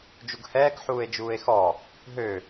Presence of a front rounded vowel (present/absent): present